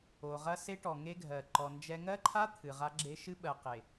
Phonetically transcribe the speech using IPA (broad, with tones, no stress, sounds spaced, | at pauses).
o˨ ʁ ɐ˦ s e˦ ʈ ɔ˨ ŋ e˦ ɡʱ ɜ˨ ǃ ɔ˨ n d͡ʒ ɛ˦ ŋ ɜ˦ ǃʰ a˦ t̪ʰ ɨ˨ ʁ a˦ ɡ͡ǁ e˦ ʃ ɨ˦ ɓ ɜ˨ q e˨